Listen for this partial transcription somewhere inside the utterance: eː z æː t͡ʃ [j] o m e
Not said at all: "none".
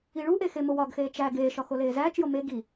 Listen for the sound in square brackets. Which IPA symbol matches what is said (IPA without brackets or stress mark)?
j